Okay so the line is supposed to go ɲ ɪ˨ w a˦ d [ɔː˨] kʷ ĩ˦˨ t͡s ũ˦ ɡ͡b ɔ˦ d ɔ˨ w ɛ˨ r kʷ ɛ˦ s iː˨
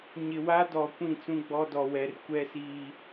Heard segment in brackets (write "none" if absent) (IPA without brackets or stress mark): ɔ˨